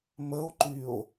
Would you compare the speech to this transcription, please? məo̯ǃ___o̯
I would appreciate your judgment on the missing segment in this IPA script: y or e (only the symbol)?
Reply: y